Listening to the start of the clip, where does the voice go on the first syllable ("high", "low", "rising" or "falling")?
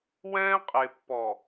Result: high